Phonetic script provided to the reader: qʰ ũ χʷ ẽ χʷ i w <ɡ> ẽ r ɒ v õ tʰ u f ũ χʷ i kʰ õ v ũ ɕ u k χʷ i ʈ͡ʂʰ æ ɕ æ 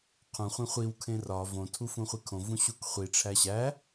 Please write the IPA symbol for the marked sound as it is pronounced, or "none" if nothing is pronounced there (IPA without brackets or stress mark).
kʰ